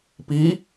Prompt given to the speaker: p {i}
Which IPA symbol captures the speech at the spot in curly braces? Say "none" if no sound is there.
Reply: i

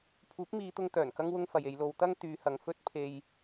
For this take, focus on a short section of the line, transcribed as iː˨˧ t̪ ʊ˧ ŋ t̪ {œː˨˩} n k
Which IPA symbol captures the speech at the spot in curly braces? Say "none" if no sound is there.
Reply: œː˨˩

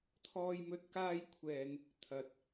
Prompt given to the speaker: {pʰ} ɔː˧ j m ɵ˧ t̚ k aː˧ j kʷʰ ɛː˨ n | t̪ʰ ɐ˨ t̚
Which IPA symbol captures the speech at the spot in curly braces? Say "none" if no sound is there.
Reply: t̪ʰ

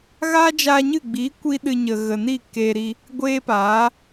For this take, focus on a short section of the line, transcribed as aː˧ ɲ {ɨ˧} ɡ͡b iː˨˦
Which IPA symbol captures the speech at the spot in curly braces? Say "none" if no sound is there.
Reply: ɨ˦˨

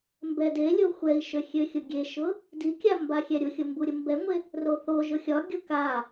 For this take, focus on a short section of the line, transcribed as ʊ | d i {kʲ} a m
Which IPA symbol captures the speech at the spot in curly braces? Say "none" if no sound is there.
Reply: kʲ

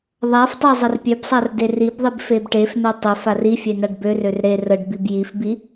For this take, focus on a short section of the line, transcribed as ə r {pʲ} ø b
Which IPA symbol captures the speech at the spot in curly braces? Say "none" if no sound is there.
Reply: pʲ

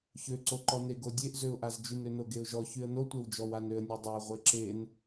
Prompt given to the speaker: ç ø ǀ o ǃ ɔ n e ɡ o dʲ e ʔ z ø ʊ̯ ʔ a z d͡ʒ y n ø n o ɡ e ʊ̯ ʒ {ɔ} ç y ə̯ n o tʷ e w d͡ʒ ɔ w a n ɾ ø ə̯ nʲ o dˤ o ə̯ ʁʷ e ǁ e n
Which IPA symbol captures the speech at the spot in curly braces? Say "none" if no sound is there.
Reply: ɔ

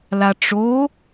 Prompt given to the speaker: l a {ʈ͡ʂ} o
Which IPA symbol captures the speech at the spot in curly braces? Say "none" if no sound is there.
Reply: ʈ͡ʂ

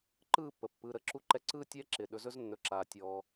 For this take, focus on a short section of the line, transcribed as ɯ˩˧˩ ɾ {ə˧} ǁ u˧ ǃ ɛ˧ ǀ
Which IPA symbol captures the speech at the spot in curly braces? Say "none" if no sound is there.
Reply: ə˧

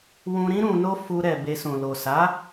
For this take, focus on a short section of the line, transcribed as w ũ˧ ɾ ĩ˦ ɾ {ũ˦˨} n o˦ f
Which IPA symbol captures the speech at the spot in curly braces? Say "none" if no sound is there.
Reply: ũ˧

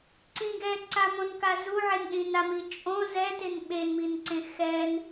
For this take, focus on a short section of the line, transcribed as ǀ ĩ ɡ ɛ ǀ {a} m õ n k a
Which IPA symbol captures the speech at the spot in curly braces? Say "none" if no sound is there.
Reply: a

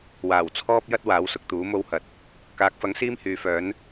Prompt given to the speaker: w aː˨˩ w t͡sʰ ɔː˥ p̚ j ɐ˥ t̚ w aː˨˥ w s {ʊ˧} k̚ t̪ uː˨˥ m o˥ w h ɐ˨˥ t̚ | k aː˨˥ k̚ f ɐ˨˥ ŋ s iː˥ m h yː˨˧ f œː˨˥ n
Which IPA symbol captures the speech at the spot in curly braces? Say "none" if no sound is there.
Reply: ʊ˧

